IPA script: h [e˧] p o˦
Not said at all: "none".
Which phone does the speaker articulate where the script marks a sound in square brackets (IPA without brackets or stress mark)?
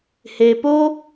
e˧